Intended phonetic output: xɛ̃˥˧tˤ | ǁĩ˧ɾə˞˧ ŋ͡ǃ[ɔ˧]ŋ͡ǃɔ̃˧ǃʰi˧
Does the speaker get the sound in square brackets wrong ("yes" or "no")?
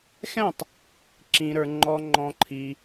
no